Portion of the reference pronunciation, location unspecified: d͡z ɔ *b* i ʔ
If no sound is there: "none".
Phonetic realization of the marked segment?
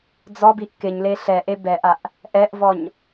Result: b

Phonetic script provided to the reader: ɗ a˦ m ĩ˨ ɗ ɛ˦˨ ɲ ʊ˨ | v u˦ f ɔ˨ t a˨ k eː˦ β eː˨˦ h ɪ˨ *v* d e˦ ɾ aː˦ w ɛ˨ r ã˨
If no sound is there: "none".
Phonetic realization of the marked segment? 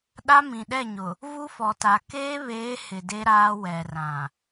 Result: none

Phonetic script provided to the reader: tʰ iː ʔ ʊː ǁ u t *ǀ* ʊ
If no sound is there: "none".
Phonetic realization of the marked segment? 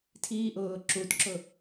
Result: ǁ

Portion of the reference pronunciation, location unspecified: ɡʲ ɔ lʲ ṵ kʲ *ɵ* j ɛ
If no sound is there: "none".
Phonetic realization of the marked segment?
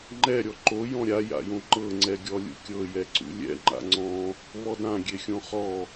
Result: ɤ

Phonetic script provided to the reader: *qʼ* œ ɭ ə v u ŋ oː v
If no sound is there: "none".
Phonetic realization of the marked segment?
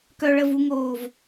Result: k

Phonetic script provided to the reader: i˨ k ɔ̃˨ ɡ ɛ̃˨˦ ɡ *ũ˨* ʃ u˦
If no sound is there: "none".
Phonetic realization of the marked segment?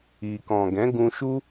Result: ũ˧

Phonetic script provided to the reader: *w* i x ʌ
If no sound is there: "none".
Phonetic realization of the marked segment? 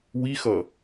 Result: w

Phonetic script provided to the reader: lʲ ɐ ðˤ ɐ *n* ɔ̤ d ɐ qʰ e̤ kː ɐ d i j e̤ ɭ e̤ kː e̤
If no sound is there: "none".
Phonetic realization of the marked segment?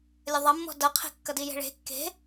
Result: mː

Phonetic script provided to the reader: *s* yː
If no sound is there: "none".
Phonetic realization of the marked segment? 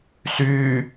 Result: s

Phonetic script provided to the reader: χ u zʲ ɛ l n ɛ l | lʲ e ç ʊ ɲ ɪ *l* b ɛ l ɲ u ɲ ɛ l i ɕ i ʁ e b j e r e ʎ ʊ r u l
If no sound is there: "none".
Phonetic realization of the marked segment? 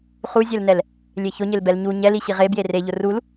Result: l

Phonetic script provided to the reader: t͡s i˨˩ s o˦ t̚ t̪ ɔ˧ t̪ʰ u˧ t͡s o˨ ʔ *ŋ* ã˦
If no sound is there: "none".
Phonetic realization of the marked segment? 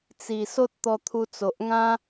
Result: ŋ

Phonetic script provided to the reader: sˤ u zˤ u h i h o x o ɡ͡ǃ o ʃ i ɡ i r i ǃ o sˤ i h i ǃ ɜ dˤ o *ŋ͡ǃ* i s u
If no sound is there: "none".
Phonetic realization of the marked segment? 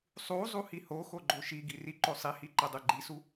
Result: ɡ͡ǃ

